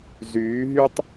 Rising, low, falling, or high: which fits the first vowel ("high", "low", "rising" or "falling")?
rising